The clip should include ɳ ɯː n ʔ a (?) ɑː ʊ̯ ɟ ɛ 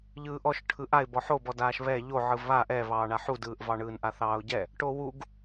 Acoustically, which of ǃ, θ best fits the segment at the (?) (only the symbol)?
θ